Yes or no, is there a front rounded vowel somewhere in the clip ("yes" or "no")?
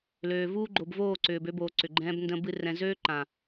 yes